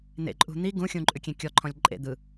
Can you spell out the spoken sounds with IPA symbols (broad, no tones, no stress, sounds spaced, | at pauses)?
n̪ ḛ ǃʼ ṳ n̪ i ɡ ũ xʲ ũ ǃʼ ʉ kʲ ẽ kʲ ɔ ǃʰ ɔ̃ lʲ ǃʼ ḛ d̪ ɯ